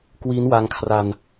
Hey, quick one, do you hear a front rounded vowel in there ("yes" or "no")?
no